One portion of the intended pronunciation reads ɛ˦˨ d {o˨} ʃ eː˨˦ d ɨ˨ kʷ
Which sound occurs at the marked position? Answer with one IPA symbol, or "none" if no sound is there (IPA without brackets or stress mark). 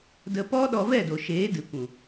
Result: o˨